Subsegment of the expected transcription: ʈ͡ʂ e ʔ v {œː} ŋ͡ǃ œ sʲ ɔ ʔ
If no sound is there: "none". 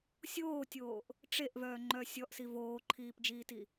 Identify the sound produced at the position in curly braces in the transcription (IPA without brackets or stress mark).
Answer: œː